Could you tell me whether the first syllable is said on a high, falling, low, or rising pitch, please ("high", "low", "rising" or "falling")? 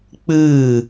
falling